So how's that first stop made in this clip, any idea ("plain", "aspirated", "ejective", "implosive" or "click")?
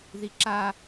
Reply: click